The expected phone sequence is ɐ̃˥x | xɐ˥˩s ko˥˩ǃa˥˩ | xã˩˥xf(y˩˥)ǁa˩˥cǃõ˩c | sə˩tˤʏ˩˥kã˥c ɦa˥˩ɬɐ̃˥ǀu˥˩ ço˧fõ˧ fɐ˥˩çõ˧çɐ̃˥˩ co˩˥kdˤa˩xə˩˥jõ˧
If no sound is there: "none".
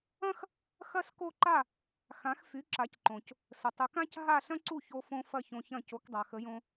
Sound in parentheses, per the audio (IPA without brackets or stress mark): y˩˥